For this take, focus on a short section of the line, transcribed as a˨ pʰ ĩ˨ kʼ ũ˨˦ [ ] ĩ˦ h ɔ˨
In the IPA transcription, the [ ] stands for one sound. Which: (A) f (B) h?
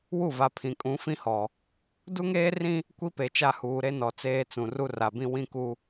A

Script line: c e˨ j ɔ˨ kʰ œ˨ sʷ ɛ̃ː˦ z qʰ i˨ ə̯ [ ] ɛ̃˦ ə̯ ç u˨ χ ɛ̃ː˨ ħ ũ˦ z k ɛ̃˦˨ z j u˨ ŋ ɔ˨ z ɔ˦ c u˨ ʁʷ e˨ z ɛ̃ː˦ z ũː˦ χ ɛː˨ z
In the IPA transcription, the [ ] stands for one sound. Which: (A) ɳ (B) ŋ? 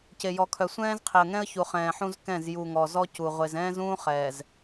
B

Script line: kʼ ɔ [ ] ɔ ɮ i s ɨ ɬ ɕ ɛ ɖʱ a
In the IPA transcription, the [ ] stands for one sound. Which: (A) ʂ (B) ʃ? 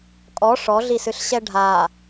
A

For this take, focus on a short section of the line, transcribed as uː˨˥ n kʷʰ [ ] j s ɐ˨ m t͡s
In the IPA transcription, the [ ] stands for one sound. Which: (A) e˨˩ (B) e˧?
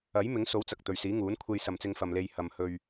B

